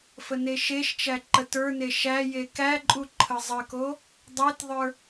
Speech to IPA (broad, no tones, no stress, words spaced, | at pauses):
fəneʃeʃt͡ʃæ ǃətə˞ne ʃæ jekæǃʼu ǃʰəzˤəko | dˤetðˤə˞